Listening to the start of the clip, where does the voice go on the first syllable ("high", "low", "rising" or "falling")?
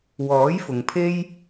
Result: rising